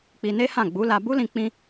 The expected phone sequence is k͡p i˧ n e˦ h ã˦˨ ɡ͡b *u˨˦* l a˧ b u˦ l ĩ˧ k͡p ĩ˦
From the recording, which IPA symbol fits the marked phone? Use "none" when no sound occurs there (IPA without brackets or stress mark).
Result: u˨˦